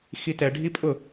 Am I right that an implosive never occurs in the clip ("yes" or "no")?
yes